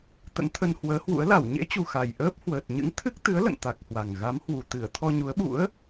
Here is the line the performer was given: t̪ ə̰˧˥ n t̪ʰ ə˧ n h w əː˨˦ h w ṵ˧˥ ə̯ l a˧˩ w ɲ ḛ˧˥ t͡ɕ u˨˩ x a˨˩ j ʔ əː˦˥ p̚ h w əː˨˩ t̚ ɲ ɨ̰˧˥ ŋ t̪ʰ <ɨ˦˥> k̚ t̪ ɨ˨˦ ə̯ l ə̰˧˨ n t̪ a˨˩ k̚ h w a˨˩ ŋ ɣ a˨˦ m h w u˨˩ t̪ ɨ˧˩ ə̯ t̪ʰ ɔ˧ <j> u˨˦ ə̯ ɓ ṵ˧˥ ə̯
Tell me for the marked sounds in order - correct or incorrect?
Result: correct, incorrect: ɲ

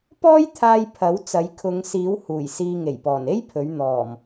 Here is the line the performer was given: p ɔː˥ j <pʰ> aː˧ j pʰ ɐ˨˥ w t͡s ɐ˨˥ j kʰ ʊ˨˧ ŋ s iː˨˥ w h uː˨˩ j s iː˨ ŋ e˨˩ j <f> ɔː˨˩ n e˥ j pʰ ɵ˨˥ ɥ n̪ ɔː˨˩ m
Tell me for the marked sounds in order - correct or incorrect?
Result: incorrect: t̪ʰ, incorrect: p

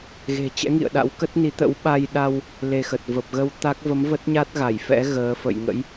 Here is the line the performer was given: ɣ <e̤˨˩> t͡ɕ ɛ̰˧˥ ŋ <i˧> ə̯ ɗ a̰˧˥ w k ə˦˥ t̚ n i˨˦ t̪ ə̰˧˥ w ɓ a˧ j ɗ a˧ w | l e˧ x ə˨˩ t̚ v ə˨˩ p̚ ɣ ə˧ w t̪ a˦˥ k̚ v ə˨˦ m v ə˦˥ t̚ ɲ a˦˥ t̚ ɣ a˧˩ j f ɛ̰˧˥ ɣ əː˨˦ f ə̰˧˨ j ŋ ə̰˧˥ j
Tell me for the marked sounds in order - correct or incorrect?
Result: correct, incorrect: ḭ˧˨

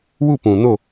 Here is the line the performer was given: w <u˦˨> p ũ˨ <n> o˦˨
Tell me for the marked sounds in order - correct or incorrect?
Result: correct, correct

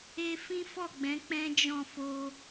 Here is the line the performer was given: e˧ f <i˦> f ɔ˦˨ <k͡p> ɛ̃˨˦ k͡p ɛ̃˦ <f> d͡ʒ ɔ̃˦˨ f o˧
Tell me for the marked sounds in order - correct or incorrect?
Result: incorrect: ĩ˦, incorrect: ɡ͡b, incorrect: none

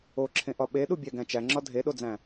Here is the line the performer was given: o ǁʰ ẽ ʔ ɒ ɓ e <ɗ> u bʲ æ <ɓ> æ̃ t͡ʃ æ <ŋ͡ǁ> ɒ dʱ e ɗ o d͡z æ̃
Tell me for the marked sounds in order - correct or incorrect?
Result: correct, incorrect: ɡ, correct

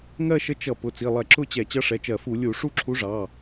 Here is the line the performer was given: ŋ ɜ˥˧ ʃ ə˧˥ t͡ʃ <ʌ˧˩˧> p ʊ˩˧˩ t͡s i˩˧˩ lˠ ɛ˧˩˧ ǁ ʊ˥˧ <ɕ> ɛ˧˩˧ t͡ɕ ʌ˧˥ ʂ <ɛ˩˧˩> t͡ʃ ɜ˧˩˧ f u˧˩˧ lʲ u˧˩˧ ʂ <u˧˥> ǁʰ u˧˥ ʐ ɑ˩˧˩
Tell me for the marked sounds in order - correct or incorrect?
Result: correct, incorrect: t͡ɕ, correct, incorrect: u˥˧

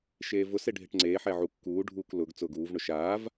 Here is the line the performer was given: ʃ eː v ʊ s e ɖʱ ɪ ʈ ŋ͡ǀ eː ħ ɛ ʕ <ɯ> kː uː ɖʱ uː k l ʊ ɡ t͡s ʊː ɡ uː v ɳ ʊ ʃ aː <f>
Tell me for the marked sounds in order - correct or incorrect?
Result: incorrect: u, incorrect: v

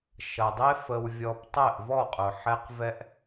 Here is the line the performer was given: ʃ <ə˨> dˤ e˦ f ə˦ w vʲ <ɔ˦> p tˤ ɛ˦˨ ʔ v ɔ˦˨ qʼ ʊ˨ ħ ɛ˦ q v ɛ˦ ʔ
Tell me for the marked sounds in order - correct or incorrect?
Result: incorrect: ɐ˨, correct

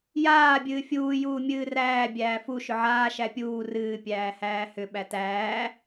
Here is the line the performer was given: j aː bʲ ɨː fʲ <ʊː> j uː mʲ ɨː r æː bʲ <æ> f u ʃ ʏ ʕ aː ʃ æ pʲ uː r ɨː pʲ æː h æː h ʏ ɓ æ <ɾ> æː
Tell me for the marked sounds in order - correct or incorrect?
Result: incorrect: uː, incorrect: æː, incorrect: t

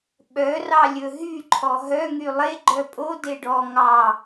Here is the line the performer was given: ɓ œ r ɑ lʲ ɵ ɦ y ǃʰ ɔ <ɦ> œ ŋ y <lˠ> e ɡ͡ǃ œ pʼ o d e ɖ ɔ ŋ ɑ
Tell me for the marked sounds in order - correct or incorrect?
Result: correct, correct

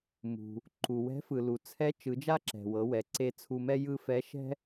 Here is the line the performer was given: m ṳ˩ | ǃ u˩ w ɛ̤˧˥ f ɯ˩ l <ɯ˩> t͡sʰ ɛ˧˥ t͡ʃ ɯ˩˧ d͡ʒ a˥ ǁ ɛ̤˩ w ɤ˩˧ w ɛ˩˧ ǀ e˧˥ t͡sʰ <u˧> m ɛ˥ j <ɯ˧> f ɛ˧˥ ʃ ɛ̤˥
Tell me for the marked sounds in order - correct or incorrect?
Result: incorrect: u˩, correct, incorrect: ɯ˥

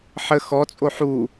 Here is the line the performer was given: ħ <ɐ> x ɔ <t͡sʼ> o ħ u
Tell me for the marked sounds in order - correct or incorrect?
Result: incorrect: ə, correct

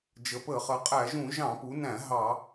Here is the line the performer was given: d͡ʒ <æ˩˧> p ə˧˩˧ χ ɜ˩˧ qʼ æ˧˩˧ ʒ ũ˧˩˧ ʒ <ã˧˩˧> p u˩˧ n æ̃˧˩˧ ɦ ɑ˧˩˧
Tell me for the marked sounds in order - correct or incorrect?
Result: incorrect: ə˩˧, incorrect: ɑ̃˧˩˧

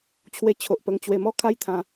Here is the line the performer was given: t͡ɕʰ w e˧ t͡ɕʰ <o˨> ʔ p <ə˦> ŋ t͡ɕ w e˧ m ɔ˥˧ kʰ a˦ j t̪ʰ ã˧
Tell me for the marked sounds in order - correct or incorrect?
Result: correct, incorrect: ə˧

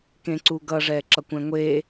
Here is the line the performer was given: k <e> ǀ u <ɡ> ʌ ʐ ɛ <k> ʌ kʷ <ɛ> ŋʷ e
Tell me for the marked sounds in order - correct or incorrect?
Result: incorrect: ẽ, correct, incorrect: ǁ, incorrect: ɛ̃

